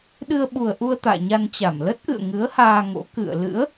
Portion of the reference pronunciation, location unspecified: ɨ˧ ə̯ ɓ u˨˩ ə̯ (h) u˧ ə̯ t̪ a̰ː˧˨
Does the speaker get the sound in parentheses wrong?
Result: yes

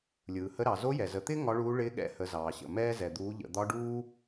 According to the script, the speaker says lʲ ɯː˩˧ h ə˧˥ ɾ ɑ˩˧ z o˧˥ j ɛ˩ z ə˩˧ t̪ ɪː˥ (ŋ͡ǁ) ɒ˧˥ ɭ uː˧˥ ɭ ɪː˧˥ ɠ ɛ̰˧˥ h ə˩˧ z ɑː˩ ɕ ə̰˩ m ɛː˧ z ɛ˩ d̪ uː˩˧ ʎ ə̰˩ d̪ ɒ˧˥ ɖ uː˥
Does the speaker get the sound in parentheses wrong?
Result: yes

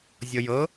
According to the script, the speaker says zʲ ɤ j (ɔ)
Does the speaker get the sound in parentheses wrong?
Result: yes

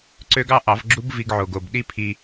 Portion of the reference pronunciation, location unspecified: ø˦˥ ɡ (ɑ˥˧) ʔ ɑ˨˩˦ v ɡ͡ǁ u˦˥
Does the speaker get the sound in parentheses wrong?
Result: no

